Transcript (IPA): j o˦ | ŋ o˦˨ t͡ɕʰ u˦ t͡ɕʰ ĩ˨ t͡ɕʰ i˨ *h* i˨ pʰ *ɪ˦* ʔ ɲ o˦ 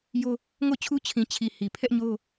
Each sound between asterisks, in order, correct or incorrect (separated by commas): correct, incorrect